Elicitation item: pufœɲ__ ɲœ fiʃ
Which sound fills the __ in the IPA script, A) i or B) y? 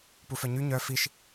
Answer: B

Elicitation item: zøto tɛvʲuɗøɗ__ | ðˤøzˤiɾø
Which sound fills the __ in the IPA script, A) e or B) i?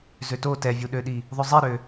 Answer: B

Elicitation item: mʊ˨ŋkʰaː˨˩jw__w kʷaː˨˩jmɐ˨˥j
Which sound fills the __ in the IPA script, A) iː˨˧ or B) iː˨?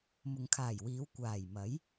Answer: A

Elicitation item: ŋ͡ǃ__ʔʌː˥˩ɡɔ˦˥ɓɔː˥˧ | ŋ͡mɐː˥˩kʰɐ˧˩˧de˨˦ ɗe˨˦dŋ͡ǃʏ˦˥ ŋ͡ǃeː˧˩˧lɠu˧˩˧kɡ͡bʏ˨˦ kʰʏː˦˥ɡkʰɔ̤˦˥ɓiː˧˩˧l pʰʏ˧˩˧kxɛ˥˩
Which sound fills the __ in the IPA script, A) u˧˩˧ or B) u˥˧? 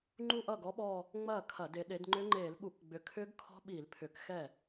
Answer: B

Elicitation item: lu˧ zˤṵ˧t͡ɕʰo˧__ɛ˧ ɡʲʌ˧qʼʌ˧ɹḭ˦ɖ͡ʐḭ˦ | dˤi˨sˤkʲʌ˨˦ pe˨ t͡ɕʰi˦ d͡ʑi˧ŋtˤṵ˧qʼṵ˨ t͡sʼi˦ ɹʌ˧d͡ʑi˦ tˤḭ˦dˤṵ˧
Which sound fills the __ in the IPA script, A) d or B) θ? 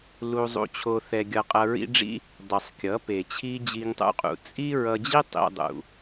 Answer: B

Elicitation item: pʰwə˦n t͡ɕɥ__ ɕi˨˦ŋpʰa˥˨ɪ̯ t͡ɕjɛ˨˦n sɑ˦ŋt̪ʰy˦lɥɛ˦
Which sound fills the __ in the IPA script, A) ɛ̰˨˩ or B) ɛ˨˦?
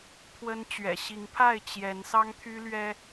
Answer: A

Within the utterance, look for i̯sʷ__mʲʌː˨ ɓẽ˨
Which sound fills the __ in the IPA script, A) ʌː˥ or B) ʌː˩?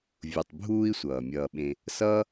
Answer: B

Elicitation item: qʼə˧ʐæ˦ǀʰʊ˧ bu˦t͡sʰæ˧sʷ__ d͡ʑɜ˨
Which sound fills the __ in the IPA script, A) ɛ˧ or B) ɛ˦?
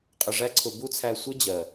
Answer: B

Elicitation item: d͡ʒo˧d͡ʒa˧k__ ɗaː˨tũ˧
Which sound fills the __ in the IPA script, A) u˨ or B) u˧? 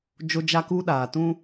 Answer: B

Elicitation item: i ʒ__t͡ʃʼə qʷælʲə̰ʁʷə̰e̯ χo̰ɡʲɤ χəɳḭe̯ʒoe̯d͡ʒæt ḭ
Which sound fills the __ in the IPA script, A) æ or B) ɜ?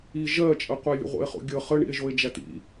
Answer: B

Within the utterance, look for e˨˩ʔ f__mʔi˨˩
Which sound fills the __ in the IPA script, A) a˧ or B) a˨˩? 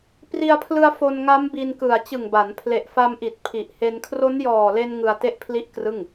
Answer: A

